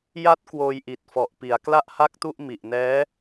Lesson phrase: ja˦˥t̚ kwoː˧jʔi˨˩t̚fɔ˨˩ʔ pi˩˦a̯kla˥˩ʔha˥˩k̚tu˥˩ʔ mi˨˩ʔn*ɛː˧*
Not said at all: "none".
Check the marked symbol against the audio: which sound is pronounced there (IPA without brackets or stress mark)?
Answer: ɛː˦˥